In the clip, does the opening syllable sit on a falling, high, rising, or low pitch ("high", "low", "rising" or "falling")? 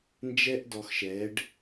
high